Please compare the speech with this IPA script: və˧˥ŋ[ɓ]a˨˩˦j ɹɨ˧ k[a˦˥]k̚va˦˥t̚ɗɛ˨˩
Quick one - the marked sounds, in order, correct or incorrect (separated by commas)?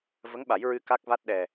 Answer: correct, correct